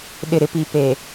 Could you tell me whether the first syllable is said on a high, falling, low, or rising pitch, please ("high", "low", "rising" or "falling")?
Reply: low